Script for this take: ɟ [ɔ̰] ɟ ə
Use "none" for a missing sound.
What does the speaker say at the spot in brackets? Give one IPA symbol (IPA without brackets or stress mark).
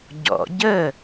ɔ̰